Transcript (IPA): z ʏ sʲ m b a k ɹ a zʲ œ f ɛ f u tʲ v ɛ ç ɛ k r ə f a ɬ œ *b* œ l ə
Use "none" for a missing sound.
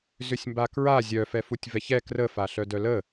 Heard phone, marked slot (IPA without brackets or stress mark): d